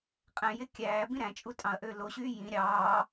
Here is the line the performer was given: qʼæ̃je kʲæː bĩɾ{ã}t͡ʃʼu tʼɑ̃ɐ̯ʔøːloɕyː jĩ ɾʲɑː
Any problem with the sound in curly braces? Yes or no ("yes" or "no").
yes